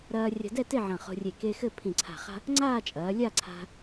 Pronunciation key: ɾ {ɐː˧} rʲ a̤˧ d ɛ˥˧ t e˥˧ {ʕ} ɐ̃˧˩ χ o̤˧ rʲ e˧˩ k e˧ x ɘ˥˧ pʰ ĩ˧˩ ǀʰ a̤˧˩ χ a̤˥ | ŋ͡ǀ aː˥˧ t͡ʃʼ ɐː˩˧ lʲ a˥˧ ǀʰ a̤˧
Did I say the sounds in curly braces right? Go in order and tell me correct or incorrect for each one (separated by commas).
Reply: correct, correct